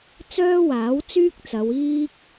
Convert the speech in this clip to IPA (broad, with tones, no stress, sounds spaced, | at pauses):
t͡s œː˥ w aː˨˥ w t͡s yː˥ k̚ t͡s ɐ˨˧ w iː˥ k̚